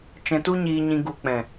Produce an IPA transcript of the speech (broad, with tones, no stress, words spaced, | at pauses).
t͡ʃɛ̃˧tu˦ɲiː˧ɲĩ˧ ɡu˨k͡pɛ̃˨